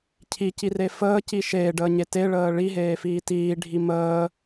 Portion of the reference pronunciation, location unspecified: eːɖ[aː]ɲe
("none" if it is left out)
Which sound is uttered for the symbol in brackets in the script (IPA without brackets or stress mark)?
əː